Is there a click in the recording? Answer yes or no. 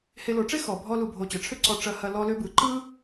yes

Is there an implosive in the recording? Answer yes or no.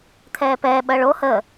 yes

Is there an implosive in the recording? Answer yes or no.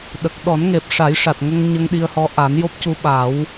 yes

